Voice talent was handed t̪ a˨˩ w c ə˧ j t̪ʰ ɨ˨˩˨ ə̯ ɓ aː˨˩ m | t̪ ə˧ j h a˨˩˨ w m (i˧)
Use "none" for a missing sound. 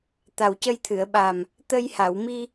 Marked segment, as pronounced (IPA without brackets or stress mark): i˧